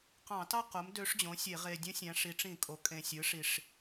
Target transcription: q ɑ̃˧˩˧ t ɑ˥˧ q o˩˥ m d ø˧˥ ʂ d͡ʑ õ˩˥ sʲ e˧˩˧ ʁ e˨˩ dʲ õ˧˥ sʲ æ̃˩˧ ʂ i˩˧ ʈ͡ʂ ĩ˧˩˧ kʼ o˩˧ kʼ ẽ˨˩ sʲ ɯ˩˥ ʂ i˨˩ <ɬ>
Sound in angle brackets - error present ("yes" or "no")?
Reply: yes